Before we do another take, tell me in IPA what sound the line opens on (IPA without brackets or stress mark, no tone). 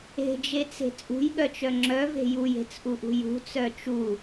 e̤